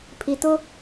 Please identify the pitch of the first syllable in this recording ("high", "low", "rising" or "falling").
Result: low